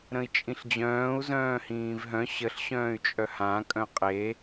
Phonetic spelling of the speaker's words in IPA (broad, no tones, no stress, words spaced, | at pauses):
ɾə̃i̯t͡ʃʼĩɬd͡ʑœ̃ːu̯ zœ̃ːhĩːvɦœ̃ ɕəɬ ɕœ̃ːy̯t͡ʃʼœhã kʼœ̃qʼe